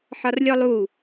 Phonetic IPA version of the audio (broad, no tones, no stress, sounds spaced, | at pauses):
ħ ɒ r lʲ ɔ lˠ u